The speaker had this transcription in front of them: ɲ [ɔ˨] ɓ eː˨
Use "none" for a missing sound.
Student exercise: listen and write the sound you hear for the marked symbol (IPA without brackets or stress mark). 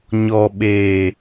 ɔ˨